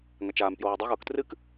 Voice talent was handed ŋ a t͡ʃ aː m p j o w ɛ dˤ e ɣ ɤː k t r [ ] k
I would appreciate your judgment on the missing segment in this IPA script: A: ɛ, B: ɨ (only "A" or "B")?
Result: B